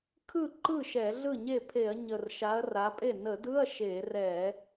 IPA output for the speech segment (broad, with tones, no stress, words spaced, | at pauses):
kʰɯ˥˩ǃɯ˥˩ ʃɛ˧˩˧ɮɯ˥˩ɲe˥˩pʰe˧˩˧ɐ̯ ɲə˨˩r ʃa˨˦ɐ̯ra˨˦pʼe˥˩ nə˧˩˧dɯ˧˥˧ɐ̯ ʃe˧˩˧rɛ˧˩˧